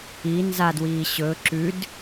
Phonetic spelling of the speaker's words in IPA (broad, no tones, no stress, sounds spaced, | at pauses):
i n z a d w iː ɕ ɵː ǁ ʉ d